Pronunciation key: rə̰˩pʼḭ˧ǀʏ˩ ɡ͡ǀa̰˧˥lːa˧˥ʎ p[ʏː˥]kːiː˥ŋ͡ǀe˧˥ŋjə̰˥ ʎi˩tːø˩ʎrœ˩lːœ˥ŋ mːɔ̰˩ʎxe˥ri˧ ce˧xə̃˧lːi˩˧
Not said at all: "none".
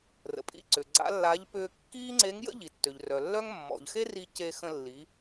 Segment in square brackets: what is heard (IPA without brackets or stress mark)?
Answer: ʏː˧